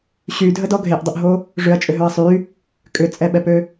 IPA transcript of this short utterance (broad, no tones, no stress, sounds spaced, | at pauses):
ɕ y dʱ ə d ɔ ɡʱ e ʔ dˤ ʏ ʔ ɦ o | ʐ ʏ ɐ̯ t͡ʃʼ ʏ ɦ ø ɐ̯ sˤ y | kʼ ʏ t͡sʼ ɛ ɓ ɛ p ø